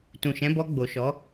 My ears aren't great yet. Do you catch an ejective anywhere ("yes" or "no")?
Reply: no